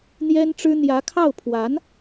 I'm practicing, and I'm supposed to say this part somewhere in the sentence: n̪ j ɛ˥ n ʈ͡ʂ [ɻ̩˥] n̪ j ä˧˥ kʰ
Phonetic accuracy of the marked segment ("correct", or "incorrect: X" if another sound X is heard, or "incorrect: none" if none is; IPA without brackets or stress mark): correct